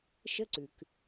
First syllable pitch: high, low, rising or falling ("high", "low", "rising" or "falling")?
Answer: high